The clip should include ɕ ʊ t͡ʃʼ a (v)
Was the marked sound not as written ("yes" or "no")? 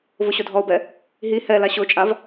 no